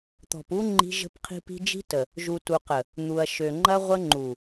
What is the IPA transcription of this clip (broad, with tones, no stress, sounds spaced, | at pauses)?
t̪ ɔ̤˨ p u˦ ŋ͡ǃ i̤˦ ʒ ə̤˦ p qʰ i̤˦ p i̤˦ d͡ʒ i̤˦ t ə˨ | ʒ u˨ t u˨ q ə˨ | n̪ u˨ ɐ̯ ʃ ø˨ ŋ͡ǃ ɐ˦ ʁʷ ə˦ ŋ͡ǃ u˨